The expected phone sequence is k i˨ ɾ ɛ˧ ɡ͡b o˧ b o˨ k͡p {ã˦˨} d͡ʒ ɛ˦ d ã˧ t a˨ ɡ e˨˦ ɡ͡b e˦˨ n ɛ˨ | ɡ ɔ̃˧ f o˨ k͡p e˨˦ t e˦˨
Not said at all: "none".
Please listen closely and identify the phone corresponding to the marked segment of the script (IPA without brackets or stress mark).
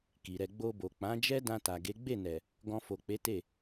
ã˨˦